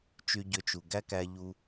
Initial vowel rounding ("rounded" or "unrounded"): rounded